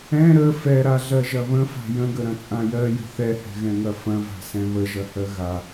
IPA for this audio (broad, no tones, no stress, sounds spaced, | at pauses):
ɛ̃ ɾ ə f ɛ ɾ a ɮ ɜ ʒ ɐ β ə̃ f a̤ j ə̃ ɡ ə ɾ ɐ̃ t͡sʼ ã j ɜ j ə̤ θ ɛ h ɛ̤ ɣ ɛ̃ ŋ ɐ f ɐ̃ v a̤ s ɛ̃ β ə ʒ ɐ h ɜ ɣ a